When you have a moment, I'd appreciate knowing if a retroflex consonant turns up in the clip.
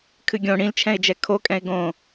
yes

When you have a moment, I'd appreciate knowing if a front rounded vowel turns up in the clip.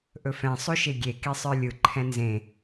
no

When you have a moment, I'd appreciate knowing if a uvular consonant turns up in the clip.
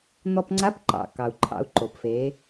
no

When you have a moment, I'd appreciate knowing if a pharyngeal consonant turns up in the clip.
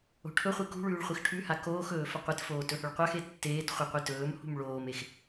no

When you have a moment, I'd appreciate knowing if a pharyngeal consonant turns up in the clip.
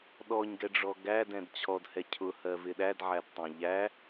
yes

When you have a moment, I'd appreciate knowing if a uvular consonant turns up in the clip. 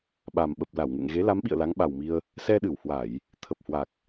no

